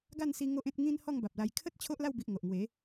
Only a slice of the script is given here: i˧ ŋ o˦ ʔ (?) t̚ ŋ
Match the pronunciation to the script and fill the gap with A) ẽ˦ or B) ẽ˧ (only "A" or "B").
A